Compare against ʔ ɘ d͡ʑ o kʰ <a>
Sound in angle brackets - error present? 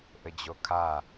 no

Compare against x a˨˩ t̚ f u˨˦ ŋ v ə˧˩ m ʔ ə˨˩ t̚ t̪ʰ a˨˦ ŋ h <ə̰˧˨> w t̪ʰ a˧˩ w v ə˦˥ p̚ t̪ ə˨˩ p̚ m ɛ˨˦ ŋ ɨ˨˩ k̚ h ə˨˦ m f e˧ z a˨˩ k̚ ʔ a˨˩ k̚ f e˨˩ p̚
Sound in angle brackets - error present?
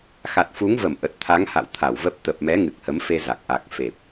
yes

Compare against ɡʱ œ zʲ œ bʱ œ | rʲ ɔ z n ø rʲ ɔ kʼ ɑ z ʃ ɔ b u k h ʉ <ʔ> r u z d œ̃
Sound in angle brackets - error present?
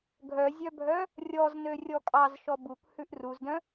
no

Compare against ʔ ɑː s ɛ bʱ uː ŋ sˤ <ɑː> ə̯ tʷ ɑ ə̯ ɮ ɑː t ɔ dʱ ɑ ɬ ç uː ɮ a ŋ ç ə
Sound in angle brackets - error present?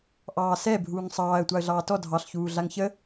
no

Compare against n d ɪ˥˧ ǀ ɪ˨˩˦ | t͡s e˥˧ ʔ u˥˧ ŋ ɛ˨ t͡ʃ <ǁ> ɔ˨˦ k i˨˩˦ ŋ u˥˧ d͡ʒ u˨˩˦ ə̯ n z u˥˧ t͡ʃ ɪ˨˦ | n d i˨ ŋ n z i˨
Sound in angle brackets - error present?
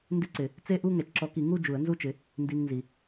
no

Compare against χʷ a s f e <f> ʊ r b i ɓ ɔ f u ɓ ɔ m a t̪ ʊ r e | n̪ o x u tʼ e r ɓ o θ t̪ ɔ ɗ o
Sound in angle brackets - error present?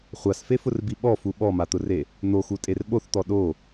no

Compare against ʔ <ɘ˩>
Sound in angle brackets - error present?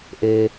yes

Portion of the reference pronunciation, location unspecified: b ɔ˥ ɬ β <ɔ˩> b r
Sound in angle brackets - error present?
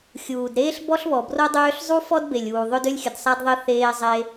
no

